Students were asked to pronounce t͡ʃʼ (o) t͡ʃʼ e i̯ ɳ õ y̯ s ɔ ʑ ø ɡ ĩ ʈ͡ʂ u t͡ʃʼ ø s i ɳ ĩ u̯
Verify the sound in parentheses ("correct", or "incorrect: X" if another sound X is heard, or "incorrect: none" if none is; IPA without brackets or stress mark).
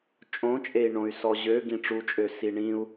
incorrect: õ